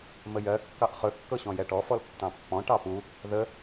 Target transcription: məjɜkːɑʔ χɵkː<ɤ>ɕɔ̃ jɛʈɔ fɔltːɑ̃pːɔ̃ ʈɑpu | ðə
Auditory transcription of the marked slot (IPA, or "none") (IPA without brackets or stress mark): ɤ